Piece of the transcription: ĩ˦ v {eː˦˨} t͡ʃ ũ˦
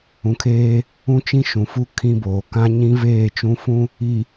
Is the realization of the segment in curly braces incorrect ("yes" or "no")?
no